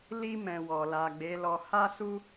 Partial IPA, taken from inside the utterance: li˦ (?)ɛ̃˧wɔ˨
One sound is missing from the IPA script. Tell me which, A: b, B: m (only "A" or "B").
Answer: B